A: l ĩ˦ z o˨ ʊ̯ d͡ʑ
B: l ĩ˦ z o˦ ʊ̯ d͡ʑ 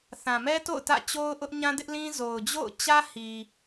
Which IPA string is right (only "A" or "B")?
A